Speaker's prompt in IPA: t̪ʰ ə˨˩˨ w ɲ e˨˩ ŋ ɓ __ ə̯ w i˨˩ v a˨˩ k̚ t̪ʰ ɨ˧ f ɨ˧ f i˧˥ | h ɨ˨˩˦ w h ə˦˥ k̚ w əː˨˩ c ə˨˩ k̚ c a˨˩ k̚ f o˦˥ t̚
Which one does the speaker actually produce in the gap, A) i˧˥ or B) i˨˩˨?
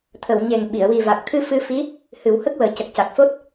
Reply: B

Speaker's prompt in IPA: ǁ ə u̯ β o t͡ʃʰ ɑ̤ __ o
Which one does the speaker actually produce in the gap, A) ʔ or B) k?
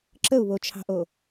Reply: A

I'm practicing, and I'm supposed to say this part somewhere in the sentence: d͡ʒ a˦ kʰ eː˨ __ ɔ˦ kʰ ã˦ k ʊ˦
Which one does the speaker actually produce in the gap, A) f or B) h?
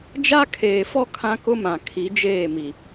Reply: A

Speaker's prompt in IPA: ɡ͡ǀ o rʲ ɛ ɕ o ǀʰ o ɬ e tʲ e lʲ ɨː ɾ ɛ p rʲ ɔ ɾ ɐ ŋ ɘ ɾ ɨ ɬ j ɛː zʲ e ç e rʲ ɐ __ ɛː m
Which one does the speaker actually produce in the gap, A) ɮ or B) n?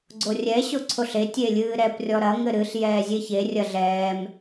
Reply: A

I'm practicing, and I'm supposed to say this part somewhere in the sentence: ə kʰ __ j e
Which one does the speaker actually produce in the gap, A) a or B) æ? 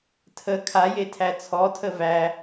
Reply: A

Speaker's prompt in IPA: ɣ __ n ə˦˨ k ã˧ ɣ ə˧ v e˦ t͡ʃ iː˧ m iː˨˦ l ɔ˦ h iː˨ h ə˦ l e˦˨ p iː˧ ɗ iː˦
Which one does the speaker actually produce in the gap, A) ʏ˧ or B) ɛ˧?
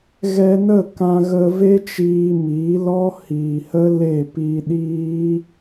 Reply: B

